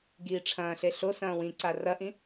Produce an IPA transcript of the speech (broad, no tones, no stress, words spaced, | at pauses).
ɡiːʈ͡ʂʰɐ̃ːɬe ɬo sɐ̃ːwĩǀa rɐʔĩ